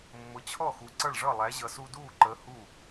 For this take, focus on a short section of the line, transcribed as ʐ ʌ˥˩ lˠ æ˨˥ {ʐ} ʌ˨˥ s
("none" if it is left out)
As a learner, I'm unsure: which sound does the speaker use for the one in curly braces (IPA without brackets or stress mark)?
ʑ